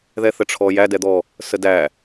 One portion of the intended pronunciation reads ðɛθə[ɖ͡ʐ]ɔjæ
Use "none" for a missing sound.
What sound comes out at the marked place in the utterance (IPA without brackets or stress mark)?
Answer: ʈ͡ʂʰ